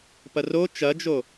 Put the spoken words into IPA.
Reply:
p ɐ r o t͡ʃ ɐ d͡ʒ o

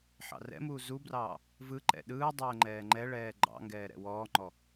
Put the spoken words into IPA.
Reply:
ħ ɑ̰ r ɛ̰ m uː z u b r ɑː | v ɯ ǃ ɛ̰ ɗ ɯː dˤ ɛː ŋ͡ǃ ɛː ŋ͡ǃ ɛ ɭ ɛː ɡ͡ǃ ɑ̰ ŋ ɡ ɛː ɾ ɛ̰ w ɔː ŋ͡ǃ ɔ

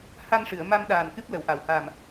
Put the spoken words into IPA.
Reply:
h a˧ n ʂ ɨ˨˩˨ ə̯ m a˧ m ɗ aː˨˩ n k ɨ˦˥ p̚ l ə˨˩˨ w ʔ a˨˩˨ w h a˨˩ m

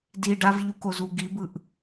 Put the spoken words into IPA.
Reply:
d i ɖ a v ʎ u k o z u ɡ i b ɯ ʔ

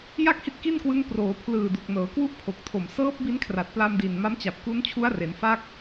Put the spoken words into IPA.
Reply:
j a˥˩ k̚ h i˦˥ t̚ k i˥˩ n k w ɯ˦˥ ŋ p r oː˩˦ pʰ l ɯː˨˩ d u˨˩ k̚ n ɤː˩˦ k w u˥˩ ʔ pʰ o˨˩ k̚ tʰ o˨˩ m s ɤː˦˥ p̚ b i˦˥ n kʰ r a˨˩ t̚ p l a˧ m d i˨˩ n m a˦˥ m t͡ɕ a˨˩ p̚ k u˦˥ n t͡ɕʰ u˦˥ a̯ r e˩˦ n f a˦˥ k̚

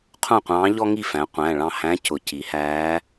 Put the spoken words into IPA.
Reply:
qʰ ũ˥˨ qʷ ɑ̃ː˧˥ ʎ ɔ˥ ŋ i˥˨ f æ̃˩˧ qʷ æ̃˩˧˩ ɭ ɑ̃˥˨ h æ̃˧˥ c ʊ˩˧ c i˩˧ h æː˧˥

